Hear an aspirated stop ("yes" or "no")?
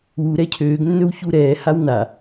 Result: yes